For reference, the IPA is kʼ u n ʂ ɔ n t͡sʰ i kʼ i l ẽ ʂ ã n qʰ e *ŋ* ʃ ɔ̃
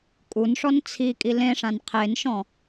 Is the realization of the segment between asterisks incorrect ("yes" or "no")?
yes